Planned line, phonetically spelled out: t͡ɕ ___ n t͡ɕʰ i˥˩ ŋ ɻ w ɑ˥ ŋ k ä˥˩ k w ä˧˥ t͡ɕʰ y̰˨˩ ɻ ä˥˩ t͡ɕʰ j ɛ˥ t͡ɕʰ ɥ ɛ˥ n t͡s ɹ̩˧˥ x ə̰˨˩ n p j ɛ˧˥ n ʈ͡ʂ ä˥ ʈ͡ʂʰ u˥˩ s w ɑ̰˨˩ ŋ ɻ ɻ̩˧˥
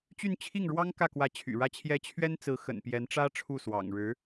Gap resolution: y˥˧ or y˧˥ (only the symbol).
y˥˧